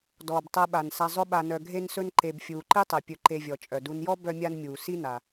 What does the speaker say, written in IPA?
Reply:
dɔː˩btˤɛ˨ɓa˩n sa˨zˤʊ˦ɓa˨nœ˨ ɡʱe˦nsɵ˦n ǃe˨b fʲuː˩ǃi˦ tˤɛ˩pʲɵ˨ǃe˨vʲɔ˩ t͡ʃʼœ˩du˨njɔ˥ bœ˦mʲa˦nmʲuː˩ si˦na˩

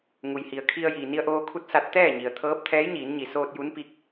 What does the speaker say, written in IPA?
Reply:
ŋu˩jhi˩ə̯kʰi˧ə̯jiː˩ ni˧ə̯ʔoː˧kʰu˧˥t̚ sa˧˥t̚ t̪ɛː˥˨ɲi˩ə̯t̪ʰɤː˧˥p̚ t̪ʰɛː˧˥jɲiː˩˧nɲi˩soː˧t̚ ju˧˥npi˧˥k̚

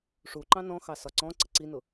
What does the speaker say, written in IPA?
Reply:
ʂu ǃɑ̃nɔ̃xɑ sɒǀɔ̃ǀə ǀinʊ

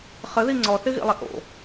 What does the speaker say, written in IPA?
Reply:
χəði ŋ͡ǀɔθɪɣḭlˠɪ ʔo̰

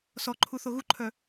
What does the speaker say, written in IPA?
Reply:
sɔǃʰu θoɣuǃʰœ

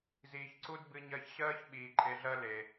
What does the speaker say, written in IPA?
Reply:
ziː˨çǀu˦d bɨ˧ɲɜ˧çɕɜː˦ç ɓiː˨ǃʼe˧ɮɜ˦ le˨

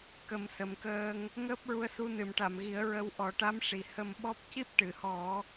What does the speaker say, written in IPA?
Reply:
kə˨˩˦msə˨˩mkəː˧ŋ | ŋəː˦˥p̚ɹu˧ə̯ su˧nɨ˨˩˨mʈa˨˩˨mɣi˨˩˦ə̯ ɹə˧w ʔɔ˨˩˦ʈa˧˥mʂi˨˩ hə˧mɓɔ˦˥p̚ ci˦˥p̚ʈɨ˨˩˨hɔ˨˩˦

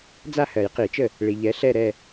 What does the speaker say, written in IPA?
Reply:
d͡za˥˩hɜ˨˩˦jqi˨˩˦t͡ʃə˥˩ | ɭi˨ʎɛ˨˥ ɬɛ˥˧ɾɛ˥˧

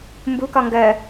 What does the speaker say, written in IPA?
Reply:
mbukɒ ŋɡɜ

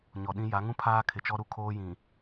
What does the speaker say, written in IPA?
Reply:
ɲɔ˨ɗĩ˦ ja˨˦ŋũ˦ pʰaː˦kʰɪ˨t͡ʃɔ˦ɾu˦ kʰoː˦jĩ˨

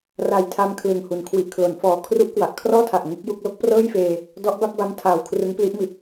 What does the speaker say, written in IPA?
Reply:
ra˨˩jtʰa˧m kʰlɯ˨˩ŋhu˨˩n kʰwi˨˩ʔkʰlo˩˦nfɔː˨˩ kʰru˦˥ʔkwa˨˩ʔkʰrɔː˥˩tʰa˨˩ʔ ŋu˦˥k̚ju˥˩k̚ lo˦˥k̚prɤː˥˩jfeː˧ | dɔ˦˥ʔ ba˥˩p̚ba˦˥m tʰaː˨˩w kʰrɯ˦˥ŋpli˦˥ʔmi˨˩t̚

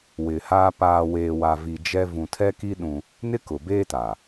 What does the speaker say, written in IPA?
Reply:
wɪ˨haː˦ paː˨weː˨wa˨vi˨ d͡ʒɛ˦ vũ˨tʰɛ˦ki˦ ɗũ˦ | nɪ˦kʊ˨beː˦ta˨

